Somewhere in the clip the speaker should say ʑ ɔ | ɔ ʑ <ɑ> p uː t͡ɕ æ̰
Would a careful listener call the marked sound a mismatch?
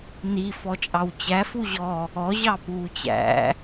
no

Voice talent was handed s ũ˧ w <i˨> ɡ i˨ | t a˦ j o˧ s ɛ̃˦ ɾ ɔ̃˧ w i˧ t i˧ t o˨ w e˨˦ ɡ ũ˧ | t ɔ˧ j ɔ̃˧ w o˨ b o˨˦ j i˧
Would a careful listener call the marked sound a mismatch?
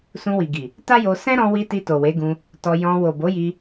no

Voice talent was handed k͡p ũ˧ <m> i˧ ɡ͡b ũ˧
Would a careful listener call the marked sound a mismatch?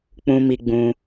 no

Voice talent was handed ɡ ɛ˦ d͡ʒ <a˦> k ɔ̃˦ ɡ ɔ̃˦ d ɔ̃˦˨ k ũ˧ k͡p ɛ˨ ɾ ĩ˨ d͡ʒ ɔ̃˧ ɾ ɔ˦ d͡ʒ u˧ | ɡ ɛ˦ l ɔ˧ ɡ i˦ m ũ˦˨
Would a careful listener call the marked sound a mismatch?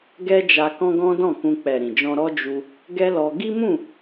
yes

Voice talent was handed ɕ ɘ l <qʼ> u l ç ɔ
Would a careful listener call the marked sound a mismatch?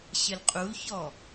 no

